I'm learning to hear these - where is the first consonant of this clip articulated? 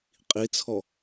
uvula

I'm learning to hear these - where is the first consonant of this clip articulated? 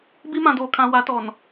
lips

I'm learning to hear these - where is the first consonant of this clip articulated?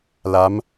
tongue tip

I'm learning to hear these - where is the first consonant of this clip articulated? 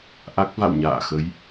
throat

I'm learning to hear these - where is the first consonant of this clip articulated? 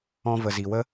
lips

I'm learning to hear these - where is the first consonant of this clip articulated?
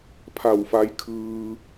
lips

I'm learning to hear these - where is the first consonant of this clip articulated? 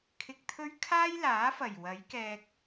velum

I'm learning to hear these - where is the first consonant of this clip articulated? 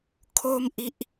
velum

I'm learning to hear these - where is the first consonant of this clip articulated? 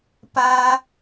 lips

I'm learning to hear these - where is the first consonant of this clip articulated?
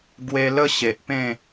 velum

